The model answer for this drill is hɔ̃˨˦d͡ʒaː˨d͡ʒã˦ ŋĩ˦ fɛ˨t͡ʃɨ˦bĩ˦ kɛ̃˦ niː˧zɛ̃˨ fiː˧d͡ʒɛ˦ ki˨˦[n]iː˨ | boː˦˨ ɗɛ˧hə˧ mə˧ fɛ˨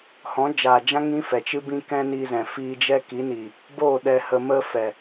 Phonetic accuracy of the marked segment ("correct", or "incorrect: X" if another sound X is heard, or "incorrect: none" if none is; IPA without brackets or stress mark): correct